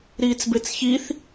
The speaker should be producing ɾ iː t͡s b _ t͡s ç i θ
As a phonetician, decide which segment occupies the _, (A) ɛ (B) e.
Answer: B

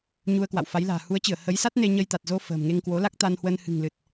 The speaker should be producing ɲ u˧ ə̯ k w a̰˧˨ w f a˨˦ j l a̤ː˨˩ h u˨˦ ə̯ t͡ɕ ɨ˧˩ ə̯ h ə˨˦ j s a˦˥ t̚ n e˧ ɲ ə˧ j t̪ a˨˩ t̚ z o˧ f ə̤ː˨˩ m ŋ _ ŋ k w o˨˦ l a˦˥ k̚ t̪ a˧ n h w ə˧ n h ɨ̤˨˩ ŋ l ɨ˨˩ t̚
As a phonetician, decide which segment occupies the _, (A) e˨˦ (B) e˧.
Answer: B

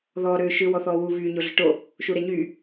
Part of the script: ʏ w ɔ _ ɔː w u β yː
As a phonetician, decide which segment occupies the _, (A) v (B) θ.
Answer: B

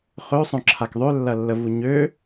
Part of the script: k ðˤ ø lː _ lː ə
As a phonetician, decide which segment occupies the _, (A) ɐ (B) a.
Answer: A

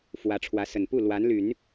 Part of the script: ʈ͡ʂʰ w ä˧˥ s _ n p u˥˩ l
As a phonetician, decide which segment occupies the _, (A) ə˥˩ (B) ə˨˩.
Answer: B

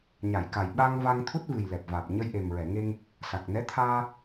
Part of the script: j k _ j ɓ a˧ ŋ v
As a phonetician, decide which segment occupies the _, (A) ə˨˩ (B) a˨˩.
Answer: B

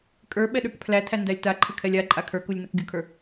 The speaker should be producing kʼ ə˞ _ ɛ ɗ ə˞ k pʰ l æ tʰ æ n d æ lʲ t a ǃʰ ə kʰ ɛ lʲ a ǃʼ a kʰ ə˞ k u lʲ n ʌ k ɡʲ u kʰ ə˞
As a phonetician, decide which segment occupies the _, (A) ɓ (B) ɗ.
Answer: A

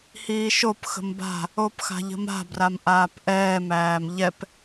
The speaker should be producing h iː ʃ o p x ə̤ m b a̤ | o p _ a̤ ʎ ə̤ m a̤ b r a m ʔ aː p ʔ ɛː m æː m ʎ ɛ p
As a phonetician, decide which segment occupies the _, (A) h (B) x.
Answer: B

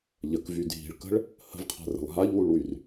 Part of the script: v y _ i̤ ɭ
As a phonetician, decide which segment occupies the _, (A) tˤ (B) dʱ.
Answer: B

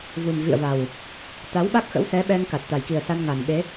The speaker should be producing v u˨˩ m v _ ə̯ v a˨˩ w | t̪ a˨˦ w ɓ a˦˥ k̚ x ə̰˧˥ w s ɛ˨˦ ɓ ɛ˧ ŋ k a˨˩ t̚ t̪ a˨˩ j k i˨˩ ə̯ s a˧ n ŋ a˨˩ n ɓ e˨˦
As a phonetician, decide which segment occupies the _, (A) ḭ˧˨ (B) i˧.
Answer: A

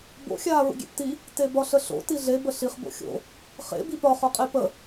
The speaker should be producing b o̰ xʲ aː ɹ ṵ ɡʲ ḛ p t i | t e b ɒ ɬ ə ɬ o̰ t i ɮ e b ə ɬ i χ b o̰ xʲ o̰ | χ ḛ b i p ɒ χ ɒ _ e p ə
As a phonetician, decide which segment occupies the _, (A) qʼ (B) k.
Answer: A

